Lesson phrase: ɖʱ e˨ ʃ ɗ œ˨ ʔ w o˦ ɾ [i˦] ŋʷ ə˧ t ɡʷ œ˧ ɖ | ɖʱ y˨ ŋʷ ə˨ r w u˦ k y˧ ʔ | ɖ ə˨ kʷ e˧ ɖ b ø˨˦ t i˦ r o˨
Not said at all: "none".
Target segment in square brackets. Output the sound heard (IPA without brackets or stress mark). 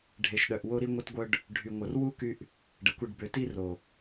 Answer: i˦